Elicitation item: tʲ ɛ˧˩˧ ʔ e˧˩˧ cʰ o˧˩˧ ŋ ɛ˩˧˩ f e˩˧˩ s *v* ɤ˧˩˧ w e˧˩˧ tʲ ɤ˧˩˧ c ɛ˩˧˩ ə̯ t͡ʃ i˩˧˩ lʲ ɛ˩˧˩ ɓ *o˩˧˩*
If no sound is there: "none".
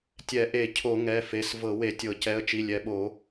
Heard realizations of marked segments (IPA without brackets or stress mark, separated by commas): v, o˧˩˧